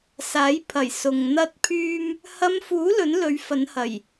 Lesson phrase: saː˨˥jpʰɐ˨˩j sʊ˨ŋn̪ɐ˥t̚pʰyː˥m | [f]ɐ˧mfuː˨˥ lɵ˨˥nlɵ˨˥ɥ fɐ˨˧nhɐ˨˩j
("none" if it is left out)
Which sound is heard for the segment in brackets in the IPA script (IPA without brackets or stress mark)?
h